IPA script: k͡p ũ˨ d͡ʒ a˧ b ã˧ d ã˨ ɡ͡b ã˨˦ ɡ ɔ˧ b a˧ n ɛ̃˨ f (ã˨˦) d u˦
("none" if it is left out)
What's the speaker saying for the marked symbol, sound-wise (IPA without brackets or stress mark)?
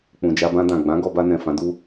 ã˨˦